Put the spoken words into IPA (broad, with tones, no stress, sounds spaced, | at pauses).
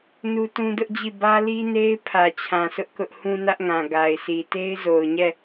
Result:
n u˦ t ũ˦ d ʊ˦ ʔ d͡ʑ i˦˨ b ä˦ l i˦ n e˦ ɪ̯ pʰ ä˨ t͡ɕʰ ã˨ s ʊ˦ ʔ k ʊ˦ ʔ h ũ˦ n ä˦ ʔ ŋ ã˨ ɡ a˨ ɪ̯ sʰ i˨ t e˦ ɪ̯ z o˨ ʊ̯ ɲ ɛ˦˨